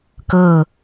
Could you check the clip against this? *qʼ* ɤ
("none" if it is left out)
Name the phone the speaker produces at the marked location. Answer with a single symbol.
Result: k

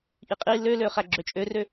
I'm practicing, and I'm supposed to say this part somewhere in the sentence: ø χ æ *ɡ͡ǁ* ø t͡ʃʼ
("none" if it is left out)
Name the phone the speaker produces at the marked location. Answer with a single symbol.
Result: ɡ͡ǁ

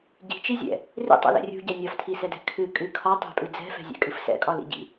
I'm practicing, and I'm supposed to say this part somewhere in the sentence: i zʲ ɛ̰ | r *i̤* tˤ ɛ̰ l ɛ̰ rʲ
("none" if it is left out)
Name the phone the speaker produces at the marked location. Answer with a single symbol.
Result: ḭ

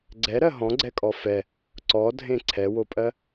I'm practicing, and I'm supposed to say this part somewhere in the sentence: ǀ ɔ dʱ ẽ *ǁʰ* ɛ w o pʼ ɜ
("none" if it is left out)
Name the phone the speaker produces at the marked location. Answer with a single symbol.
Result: ǀʰ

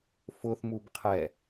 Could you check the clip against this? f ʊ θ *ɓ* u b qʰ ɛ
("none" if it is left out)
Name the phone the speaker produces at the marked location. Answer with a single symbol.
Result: m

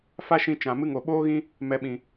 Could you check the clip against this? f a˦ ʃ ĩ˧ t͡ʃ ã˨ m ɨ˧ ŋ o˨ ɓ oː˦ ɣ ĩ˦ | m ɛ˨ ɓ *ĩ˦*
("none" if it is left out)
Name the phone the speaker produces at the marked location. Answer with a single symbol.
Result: ĩ˨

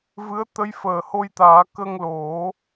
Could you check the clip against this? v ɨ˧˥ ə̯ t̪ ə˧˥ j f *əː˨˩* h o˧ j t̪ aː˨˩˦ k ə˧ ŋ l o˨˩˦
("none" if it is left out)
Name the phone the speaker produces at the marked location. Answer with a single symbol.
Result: əː˨˩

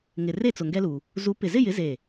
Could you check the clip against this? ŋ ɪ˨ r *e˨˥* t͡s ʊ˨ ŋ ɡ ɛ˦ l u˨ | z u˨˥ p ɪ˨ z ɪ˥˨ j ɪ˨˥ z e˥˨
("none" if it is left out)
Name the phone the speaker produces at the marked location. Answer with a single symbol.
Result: e˥˨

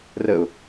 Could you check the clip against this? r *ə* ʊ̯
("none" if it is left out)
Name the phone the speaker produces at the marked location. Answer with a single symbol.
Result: ə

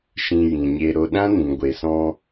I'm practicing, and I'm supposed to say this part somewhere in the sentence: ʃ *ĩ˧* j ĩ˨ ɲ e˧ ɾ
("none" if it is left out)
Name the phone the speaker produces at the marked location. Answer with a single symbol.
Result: ĩ˧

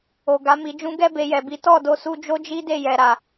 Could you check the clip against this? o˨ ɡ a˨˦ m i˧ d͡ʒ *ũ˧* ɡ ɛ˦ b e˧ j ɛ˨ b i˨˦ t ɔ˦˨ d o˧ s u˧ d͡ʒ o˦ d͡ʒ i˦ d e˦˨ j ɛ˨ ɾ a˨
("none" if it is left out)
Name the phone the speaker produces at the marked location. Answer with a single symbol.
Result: ũ˧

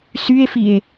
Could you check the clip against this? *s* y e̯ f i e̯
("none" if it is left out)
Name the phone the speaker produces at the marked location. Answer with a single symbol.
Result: s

